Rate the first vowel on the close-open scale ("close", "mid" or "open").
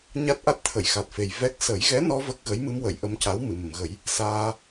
open